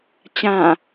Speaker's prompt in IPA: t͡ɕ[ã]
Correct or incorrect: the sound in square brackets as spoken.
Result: correct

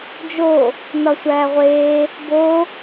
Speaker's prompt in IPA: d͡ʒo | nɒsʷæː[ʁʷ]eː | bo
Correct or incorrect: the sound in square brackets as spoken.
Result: correct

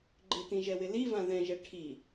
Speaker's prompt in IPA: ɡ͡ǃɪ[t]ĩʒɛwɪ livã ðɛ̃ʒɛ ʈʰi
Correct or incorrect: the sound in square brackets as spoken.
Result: correct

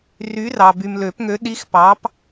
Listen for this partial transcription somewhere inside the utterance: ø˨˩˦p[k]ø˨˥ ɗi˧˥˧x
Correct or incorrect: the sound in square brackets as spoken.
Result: incorrect: ŋ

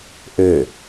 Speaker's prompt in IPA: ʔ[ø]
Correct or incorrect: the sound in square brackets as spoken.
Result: correct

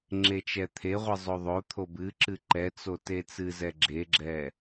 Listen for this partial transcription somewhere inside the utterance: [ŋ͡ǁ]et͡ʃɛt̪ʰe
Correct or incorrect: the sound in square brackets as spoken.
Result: correct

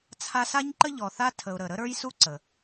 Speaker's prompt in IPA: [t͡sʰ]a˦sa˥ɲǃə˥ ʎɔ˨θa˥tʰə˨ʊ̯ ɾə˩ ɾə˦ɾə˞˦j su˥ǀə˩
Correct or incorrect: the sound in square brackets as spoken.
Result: correct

